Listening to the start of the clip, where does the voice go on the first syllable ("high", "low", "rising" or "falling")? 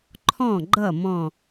falling